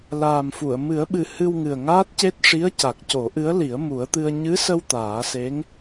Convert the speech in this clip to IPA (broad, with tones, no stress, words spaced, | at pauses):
laː˨˩mfu˨˩˨ə̯ mɨ˨˩˦ə̯ɓɨ˨˩ hɨ˧wŋɨ˨˩ə̯ ŋaː˦˥t̚ce˦˥t̚ ʂi˧˥ə̯ ca˨˩k̚co˨˩˦ʔɨ˧˥ə̯li˨˩˦ə̯ mu˨˩˦ə̯t̪ɨ˧ə̯ ɲɨ˧˥sə˧w t̪aː˨˩˦se˧˥ŋ